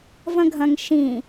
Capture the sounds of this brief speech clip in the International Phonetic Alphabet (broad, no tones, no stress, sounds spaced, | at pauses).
v ɐ̃ ɡʱ ɐ̃ ŋ ʃ ĩ